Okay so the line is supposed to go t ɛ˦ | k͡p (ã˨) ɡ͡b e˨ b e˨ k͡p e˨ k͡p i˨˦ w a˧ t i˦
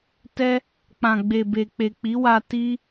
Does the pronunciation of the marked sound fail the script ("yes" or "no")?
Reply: no